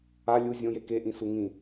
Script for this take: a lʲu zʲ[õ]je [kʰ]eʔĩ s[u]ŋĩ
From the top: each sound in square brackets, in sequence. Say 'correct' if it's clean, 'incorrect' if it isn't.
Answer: correct, incorrect, correct

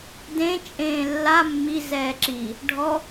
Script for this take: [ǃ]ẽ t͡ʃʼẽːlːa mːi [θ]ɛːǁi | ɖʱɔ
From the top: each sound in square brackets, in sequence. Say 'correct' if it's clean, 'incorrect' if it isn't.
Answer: incorrect, incorrect

